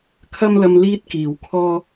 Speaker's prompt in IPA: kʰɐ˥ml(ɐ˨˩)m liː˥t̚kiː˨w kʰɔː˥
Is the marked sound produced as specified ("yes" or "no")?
no